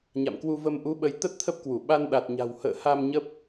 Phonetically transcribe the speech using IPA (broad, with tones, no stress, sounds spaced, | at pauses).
ɲ a̰˧˨ m k w u˧ v ə˧ m ʔ u˨˦ ɓ ə˨˦ j t̪ ə˦˥ t̚ t̪ʰ ə˦˥ p̚ k w u˧˩ ɓ a˧ n ɗ a˨˩ t̚ ɲ a̤˨˩ w h ə̰ː˧˨ h a˧ m ɲ ə˦˥ p̚